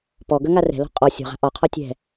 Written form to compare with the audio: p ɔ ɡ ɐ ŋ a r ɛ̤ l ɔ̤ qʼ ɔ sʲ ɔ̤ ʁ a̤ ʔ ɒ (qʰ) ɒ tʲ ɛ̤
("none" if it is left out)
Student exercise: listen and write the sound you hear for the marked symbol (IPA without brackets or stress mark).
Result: qʰ